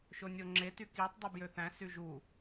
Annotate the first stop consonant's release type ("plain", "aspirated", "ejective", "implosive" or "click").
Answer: click